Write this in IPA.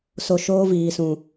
s o˧ ʃ oː˦ v iː˨ s ũ˨

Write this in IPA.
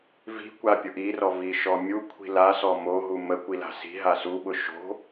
v i̤ kʷ a pʲ ʊ ʔ i r ɔ v i ʃ ɔ mʲ u kʷʰ i̤ l a s ɔ m o ɦ u m ə kʷ i l a̤ s i̤ ɦ a s u ɓ ʊ ʃ o̤

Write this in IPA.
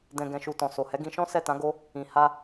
d ɛ̃˨ ɡ ɛ̃˨ ʃ u˨ t ɔ̃˨ s o˨ h ɛ˨˦ ɡ ĩ˧ ʃ ɔ̃˦ s ɛ˦˨ t ã˨˦ ɡ o˦ | ĩ˨ h a˧

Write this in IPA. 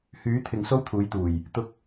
h yː˨˥ t̪ʰ ɪ˨ ŋ s o˥ w t̪ʰ uː˨˧ j t̪ uː˨˩ j | t̪ ʊ˥ k̚

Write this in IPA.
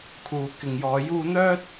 kʰ uː˨ k ɪ˨ ŋ j ɔː˨˧ j uː˧ n̪ œː˥ t̚

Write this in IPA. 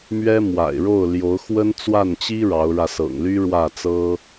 m ɥ ɛ˥ m w a̰˨˩ ɪ̯ ɻ o˥˩ ʊ̯ l j o˧˥ ʊ̯ x w ə˥ n t͡s w a˥˩ n t͡ɕ i˥ ɻ ɑ˧˥ ʊ̯ ɻ ä˧ s ɤ̰˨˩ ŋ l y˥ ɻ w ä˥˩ t͡s ɤ˥

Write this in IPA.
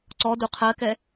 ǀ ɔ d u qʰ ɜ k ɛ

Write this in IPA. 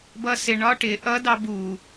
b ʌ s ɪ ɳ ɒ ʈ ɪ ʔ ʌ d ɑ b u

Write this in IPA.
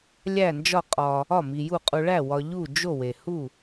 lʲ æ˥˩ n d͡ʒ ɒ˥˩ qʼ ɒ˨ | ɒ˥˩ m i˨ j u˥˩ qʼ u˨ ɭ æ˥˩ w ɒ˨ ʎ u˥˩ d͡ʒ o˥˩ w e˨ h u˥˩

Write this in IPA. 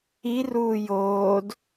i r uː j oː d

